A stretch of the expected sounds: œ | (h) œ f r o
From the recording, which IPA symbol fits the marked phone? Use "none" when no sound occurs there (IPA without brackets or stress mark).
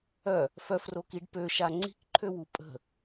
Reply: f